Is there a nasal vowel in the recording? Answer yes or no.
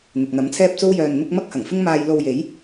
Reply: no